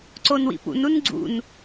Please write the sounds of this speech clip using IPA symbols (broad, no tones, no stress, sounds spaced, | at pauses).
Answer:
ǀ o n w ḭ p ṵ n u n ɡ͡ǀ ṵ n